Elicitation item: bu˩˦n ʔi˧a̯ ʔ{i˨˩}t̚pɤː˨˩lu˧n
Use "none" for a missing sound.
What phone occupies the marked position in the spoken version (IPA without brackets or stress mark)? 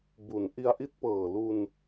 i˦˥